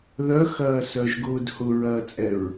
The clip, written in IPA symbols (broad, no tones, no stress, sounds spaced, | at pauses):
ð œ x ɐː s œ ʒ ɡ ʊː d h ʊ ɹ ɐː t͡sʼ ɛ ɹ